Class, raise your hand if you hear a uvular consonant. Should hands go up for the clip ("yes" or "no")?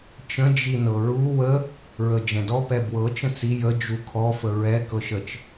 no